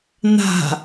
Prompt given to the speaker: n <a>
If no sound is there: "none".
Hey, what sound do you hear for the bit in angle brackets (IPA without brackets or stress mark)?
a̤